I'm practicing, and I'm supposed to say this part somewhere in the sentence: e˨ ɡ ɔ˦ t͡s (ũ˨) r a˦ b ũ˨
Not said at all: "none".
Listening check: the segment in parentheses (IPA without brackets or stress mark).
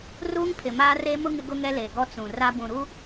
ũ˨